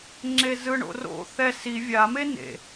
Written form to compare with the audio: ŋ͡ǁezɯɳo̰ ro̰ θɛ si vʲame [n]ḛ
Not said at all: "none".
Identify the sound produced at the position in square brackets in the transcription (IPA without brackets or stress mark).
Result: n